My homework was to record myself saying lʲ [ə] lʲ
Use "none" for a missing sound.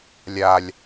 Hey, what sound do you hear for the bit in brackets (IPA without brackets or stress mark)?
a